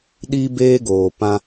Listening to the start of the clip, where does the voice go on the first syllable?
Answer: high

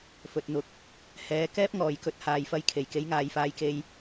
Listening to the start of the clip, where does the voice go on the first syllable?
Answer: low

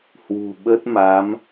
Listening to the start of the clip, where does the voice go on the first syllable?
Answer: low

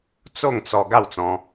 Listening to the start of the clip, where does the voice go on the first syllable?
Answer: falling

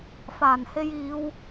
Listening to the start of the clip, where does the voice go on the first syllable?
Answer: low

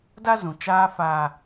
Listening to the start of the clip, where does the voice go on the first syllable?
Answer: high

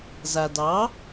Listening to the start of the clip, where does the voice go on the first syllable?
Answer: low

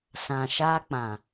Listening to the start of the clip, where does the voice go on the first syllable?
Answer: low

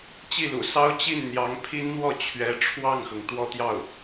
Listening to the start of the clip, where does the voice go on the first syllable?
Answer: falling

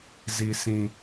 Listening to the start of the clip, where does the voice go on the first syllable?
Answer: low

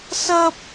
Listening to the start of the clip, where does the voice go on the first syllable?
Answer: high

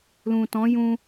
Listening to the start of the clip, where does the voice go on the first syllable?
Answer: low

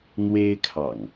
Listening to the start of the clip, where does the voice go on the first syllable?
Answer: high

